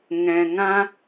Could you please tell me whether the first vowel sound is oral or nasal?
nasal